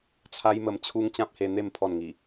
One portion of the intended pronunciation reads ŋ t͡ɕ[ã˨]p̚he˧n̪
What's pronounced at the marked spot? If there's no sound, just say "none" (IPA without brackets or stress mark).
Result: ã˦